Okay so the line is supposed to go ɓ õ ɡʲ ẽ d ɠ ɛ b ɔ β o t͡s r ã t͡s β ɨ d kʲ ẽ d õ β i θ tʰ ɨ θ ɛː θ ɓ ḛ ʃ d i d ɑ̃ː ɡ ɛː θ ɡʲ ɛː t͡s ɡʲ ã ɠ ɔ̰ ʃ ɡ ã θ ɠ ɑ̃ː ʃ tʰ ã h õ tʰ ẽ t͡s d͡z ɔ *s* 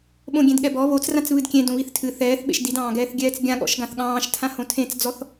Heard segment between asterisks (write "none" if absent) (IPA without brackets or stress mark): θ